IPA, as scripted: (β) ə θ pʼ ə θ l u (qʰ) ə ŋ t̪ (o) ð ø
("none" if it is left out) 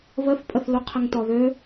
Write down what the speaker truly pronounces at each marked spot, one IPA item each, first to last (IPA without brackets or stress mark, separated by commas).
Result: β, qʰ, ɔ